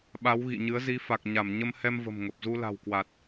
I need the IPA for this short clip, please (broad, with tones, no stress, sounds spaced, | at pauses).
ɓ a˨˦ w ɣ ḭ˧˨ ɲ ɨ˨˦ ə̯ z i˨˦ f a˨˩ k̚ ɲ a˧˩ m ɲ ə˧ m h ɛ˧ m v ə̤˨˩ m ŋ ə˨˩ p̚ z u˧ l a̤˨˩ w k w a˨˩ t̚